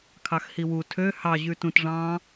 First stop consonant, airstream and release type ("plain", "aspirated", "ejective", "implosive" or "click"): aspirated